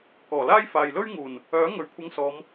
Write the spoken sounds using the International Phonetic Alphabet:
kɔː˨˩laː˥j faː˨jlɵ˥ɥ ŋuː˨˩n | œː˨˥ ŋɵ˨ɥkʷʰɐ˧ŋsɔː˨˧m

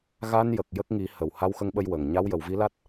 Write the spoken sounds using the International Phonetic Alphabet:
ɣa˧njə˨˩k̚ jə˦˥k̚ŋi˨˩˦ hə˨˩˨w ha˧wxə˧ŋɓə˧j wə˨˩ŋ ɲa˧˥wjə˨˩˨wvi˧˥la˦˥t̚

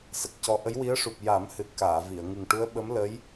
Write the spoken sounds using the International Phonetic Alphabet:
sə˨˩k̚cɔ˧ ʔə˧˥jwi˧˥ə̯ʂu˨˩p̚ ja˨˩˦mhɨ˨˩t̚ kaː˨˩˨vi˨˩˨ə̯ ŋɨ˨˩ŋʈu˧˥ə̯ɓə˧˥m lə˧˥j

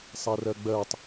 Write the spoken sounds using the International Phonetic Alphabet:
sˤɛrɜɡ͡bɜtˤ

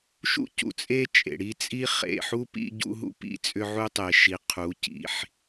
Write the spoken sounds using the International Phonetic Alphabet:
ʃṵ˦cṵ˨t͡sʼe˦t͡ʃʼḛ˨ ɽi˦t͡sʼi˦ χḛ˨ħu˦ pḭ˦ ɟṵ˦ɦṵ˦pḭ˦ t͡sʼʏ˦ʕu˦tˤe˨ʃi˨ qʰu˨˦cḭ˨ħ

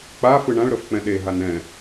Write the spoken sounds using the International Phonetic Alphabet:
k͡pa fɯɳãɭɾɤf k͡pɛ̃ɗeɦan ɛ̃

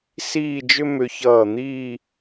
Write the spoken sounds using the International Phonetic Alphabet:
siː˥˧d͡ʒʏ˥mʏ˧ çʌː˧˩n̪iː˥˧

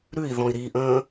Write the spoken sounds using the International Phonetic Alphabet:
ɾʉi̯ðɔ̃i̯ ɾiʔə̃ː

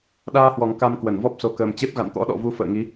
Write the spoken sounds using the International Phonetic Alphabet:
ɗaː˧hwɔ˨˩ŋ ka˧m kwə˧˩nvɔ˦˥p̚ so˨˩kəː˨˩mt͡ɕe˦˥p̚ ɣa̰˧˨nt̪ɔ̰˧˥ɗɔ̰˧˨vu˧ fə̰ː˧˨ŋi˨˦

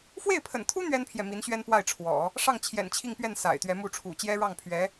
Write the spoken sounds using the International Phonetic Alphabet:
fwe˥˩ɪ̯pʰə̰˨˩nt̪ʰu˥ n̪ɥɛ˥npʰjɛ˨ mi˧˥nɕɥɛ˥npwa˥˩ɪ̯ʈ͡ʂʰwɔ̰˨˩˦ | ʂɑ˥˩ŋt͡ɕʰjɛ̰˨˩n t͡ɕʰi˥˧ŋpɥɛ˥˩n sa̰˨˩ɪ̯t̪ɥɛ˧˥ mu˥˩ʈ͡ʂʰṵ˨˩ t͡ɕjɛ˥ɻɑ˥˩ŋpʰɥɛ˧˥

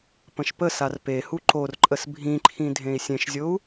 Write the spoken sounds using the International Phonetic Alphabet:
pə̃ʃpəsar pehu ǃorǃʼəs bʱĩǃʰĩ dʱẽi̯sʲẽʃzʲou̯

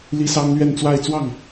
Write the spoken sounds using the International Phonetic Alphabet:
li˥sɑ˥ŋ lɥɛ˥˧nt͡swa˥˧ɪ̯ t͡swɑ˥˩ŋ

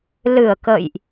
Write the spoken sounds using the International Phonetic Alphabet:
lɨ˨˩ə̯kə̰˧˨jʔ

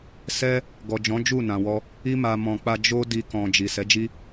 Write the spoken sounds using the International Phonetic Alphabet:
sɛ˦ | ɡɔ˨d͡ʒɔ̃˨˦ d͡ʒu˦˨ nã˨wɔ˧ | i˧ma˨ mɔ̃˨k͡pa˧ d͡ʒo˦di˧ kɔ̃˨ d͡ʒi˨ sɛ˨˦d͡ʒi˦

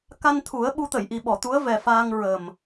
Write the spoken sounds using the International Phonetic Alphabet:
ka˧nt̪ʰu˨˩˦ə̯ ɓu˧˥t̪ə˨˩˨j ʔi˨˩ɓɔ˨˩˨t̪u˧˥ə̯ vɛ˨˩faː˧ŋɹə˨˩m

